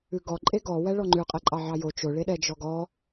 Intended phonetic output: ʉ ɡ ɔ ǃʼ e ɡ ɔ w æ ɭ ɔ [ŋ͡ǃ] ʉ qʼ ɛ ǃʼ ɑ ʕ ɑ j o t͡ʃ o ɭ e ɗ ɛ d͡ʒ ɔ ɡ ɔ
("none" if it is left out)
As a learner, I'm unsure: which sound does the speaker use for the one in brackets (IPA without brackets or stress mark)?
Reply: ŋ͡ǃ